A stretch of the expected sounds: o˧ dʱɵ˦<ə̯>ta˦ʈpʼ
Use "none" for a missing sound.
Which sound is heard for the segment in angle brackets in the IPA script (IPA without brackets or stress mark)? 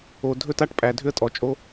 none